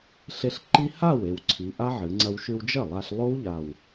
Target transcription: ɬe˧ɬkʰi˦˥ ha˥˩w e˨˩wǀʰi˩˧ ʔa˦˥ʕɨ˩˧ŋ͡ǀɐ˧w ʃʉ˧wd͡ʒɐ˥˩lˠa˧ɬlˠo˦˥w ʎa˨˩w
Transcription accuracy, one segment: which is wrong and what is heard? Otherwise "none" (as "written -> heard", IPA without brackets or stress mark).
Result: kʰ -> ǃ